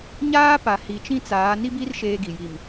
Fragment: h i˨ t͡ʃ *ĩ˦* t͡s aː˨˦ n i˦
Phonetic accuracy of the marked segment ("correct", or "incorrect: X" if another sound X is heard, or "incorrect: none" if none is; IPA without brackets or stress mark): correct